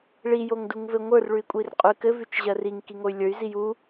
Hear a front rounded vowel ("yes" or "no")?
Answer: yes